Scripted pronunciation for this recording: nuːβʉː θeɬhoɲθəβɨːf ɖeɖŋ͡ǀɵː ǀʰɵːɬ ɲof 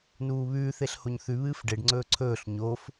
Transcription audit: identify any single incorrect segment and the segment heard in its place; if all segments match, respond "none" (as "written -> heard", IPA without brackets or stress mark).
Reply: ə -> ʉ